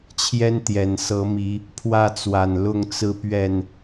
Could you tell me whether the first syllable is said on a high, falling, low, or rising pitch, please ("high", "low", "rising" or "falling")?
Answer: high